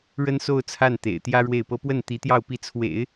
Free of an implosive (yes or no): yes